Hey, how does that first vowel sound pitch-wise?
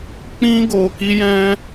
high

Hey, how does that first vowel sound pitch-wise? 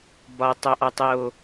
low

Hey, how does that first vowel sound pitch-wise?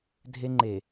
high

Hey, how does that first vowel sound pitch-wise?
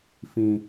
low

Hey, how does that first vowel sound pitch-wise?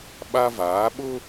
high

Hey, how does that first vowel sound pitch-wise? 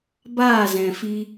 falling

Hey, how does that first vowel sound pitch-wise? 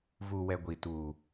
low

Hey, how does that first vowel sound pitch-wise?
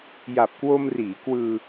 low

